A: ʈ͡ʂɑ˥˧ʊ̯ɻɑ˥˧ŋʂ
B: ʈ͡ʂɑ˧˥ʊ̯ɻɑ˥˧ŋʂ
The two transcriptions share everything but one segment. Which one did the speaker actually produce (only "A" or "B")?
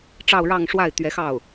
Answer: A